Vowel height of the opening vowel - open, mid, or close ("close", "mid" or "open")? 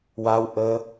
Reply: open